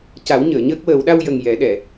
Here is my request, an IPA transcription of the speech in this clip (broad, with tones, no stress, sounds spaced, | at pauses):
c a˨˩˦ w ɲ əː˨˩˨ ɲ əː˦˥ k̚ w əː˨˩˦ w ɗ a˧ w j ə˨˩ ŋ j ɛ˨˩˦ ɗ ɛ˨˩˨